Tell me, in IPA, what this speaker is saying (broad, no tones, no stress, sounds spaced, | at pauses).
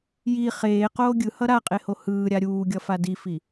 j i χ eː q oː ɡʲ ɯ h ʌ ɾ a qʼ e h o h ɯː ɾʲ a ɾʲ uː ɡʲ ʌ f a d i f i